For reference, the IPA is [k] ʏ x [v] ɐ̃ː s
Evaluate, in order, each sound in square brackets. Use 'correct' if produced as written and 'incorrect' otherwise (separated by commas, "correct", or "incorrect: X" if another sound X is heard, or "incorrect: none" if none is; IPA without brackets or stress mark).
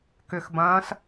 correct, incorrect: b